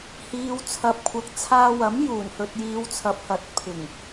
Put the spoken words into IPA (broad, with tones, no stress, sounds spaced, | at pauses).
h iː˨ w t͡sʰ ɐ˨ p̚ kʷʰ ɐ˨ k̚ t͡sʰ aː˧ w ɐ˨˥ m j uː˨˩ n h ɵ˨ t̚ j iː˨˧ w t͡sʰ ɐ˨ p̚ h ɐ˨˥ t̚ pʰ ɪ˨˩ ŋ